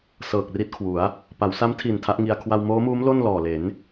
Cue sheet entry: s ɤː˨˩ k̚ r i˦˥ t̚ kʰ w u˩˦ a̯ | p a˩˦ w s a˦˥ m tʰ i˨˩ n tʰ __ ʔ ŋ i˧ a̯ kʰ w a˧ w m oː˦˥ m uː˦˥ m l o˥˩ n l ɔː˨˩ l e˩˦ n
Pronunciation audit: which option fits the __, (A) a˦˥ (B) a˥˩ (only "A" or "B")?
A